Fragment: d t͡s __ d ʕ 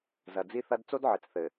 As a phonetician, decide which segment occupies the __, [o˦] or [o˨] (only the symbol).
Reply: o˦